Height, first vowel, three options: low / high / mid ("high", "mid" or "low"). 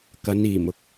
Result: low